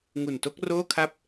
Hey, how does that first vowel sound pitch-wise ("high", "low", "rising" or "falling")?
low